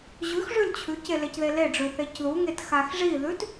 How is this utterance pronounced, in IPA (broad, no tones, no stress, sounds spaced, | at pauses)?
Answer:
ʑ ʉ x ʐ ʉ l t͡ɕʰ ʉ c e l e c ð e l e ɖ͡ʐ ʉ θ e c ð u ŋ e t x a x ʐ i ð ʉ t